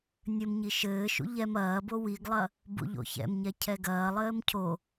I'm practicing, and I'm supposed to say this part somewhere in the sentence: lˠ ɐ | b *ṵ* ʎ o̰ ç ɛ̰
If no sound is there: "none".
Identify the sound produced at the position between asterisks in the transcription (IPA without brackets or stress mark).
ṵ